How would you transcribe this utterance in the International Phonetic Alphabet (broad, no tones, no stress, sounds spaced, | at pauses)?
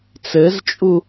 t͡s ɘ z t͡ʃʼ u